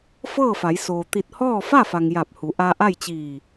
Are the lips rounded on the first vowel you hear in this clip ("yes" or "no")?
no